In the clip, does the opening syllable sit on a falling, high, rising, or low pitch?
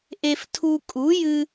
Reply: high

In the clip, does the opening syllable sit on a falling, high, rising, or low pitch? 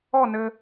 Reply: falling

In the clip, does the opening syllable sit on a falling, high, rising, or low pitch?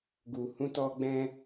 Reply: low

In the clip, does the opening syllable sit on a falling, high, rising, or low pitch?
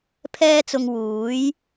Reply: high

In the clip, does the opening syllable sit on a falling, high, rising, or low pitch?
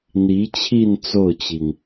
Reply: rising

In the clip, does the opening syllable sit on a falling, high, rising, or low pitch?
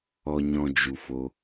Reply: low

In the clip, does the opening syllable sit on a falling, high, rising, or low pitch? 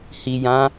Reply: low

